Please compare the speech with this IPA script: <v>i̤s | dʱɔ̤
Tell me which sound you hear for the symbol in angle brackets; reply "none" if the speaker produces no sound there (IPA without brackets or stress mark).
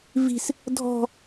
v